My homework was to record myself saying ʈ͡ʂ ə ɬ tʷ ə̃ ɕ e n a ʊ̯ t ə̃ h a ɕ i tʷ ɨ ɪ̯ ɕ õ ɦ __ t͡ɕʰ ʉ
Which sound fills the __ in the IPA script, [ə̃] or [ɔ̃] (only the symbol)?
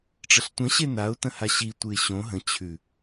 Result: ə̃